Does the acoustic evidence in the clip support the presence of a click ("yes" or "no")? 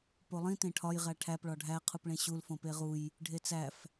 no